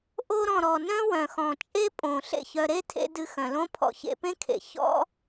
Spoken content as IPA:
ʔ o˧ ɾ ɔ̃˨ ɾ ɔ˨ n œ̃˦ w œ̃˨ x ɔ̃˨ t͡ʃʼ e˦ pʼ õː˨ ɬ ḛ˦˨ ç œ˧ ɾ e˦ tʰ ḛ˧ d ɨ˧ x œ̃˨ l õ˦ pʰ ɔ̰˧ ç ḛ˧ p ẽ˦ kʰ ḛ˨ ç ɔ̰˦

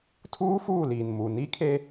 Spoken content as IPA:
tʰ uː˦ f uː˦˨ l iː˨ n m u˨ n i˦ kʰ e˦

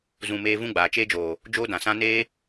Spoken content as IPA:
z ũ˧ m eː˦ v ũ˦ ɡ͡b aː˨ t͡ʃ eː˦ d͡ʒ oː˨ | d͡ʒ oː˦ d ã˨ s ã˦ n eː˦

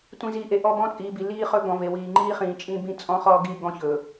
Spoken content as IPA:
tʷ ĩ˨ z iː˨ ʔ e˨ ʔ ɔ˦˨ b ɔ̃˦ t͡sʼ iː˨ b i˨ l iː˦ χ ɵ˦ ɡ ɔ̃˨ v e˨ w iː˨ ŋ͡ǃ iː˦ χ ĩː˨ t͡ʃʼ ĩ˦ b ĩ˦ t͡sʼ ɔ̃˦ χ ɔ˦ ɡ i˦˨ ɡ ɔ̃˦ ç ɵ˨

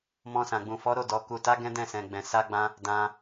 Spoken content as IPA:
m ɔ̃˧ s ã˨ ɡ͡b ũ˨ f ɔ˨˦ ɾ o˦˨ d ɔ˨ k u˨ t a˨˦ ɡ ɛ̃˦ d ɛ̃˦˨ s ɛ̃˨ ɡ͡b ɛ̃˨ s a˧ ɡ͡b ã˧ | d ã˧

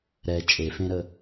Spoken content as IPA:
ɾ ɛ t͡ʃʼ e f ẽ ɾ ə

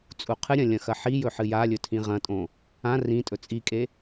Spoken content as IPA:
t͡sʼ u qʰ ɨ ɾʲ ɐ̃ lʲ ɐ̃ x ɐ ħ i j ɵ ħ ɨ j a lʲ ɵ tʰ ĩ ʁ ɐ̃ tʼ õ | ã r ĩ tʼ ɵ t͡sʼ i kʼ e

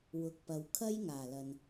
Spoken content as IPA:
w ʊ˨ k̚ p ɐ˨ w kʰ ɐ˥ j ŋ aː˨˩ l ɐ˨ n

